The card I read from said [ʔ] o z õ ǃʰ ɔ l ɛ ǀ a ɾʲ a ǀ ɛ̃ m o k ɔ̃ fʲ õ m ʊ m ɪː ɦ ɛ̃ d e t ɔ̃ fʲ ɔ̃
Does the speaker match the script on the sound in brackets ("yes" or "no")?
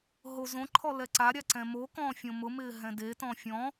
no